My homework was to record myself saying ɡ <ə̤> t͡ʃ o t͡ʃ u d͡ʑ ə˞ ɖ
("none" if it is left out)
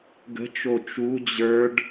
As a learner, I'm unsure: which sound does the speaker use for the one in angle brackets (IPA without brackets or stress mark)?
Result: ə̤